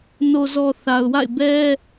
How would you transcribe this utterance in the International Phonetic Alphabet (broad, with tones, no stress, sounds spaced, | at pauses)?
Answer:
n o˨ z ɔ˨ θ a˨ ʊ̯ w a̰˦˨ ɪ̯ b ɛ˦